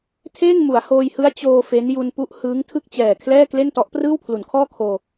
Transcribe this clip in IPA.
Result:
tʰ eː˥˩ ŋ m u˩˦ a̯ h oː˧ j h ɯ˦˥ a̯ t͡ɕ oː˧ f e˦˥ n j u˧ n p u˦˥ ʔ h ɯː˦˥ ŋ tʰ ɯ˥˩ k̚ t͡ɕ ɛː˨˩ kʰ l ɛː˥˩ k l e˥˩ n t ɔ˦˥ ʔ p r ɯː˥˩ w pʰ l u˩˦ n kʰ ɔː˥˩ kʰ oː˧

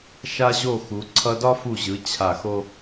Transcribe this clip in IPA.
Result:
ʃ a˧ ʑ o˧˩ x u˩˧ ǀʰ ʌ˧ d ɒ˥ f u˧˩ ʑ ɯ˩˧ t͡ɕʰ a˧˩ x o˥

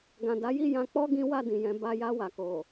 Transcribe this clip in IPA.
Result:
ɡ ã˨ d a˨˦ j i˦˨ j ã˧ k͡p ɔ˦ ɡ ĩ˦ w a˦˨ d ĩ˨ j ɛ̃˨˦ b a˧ j a˧ w a˨ k o˨

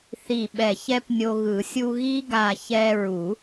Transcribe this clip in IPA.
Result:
θ i˧˩ ɓ ɛ˧˩ ç ɛ˦˥ p nʲ o˧ ɣ ɯ˨˩˦ sʲ u˧ ɣ i˦˥ ɡ a˧˩ ç ɛ˧ ɹ u˨˩˦

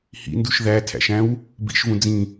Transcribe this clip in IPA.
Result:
h ḭ n d u ʃ ð æ tʰ æ̰ ʃ æ̃ w | b ḭ ʃ v ũ d͡z ĩ

